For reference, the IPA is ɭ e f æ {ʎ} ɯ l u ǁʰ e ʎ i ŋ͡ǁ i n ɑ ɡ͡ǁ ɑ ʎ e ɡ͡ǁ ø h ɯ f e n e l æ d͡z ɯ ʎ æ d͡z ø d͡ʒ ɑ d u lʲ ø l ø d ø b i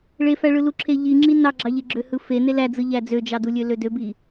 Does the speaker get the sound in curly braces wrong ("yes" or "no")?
yes